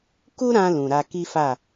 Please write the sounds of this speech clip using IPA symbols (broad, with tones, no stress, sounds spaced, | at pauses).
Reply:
k u˦ ɾ ã˧ l ũ˨ ɾ a˧ k i˦ f a˦˨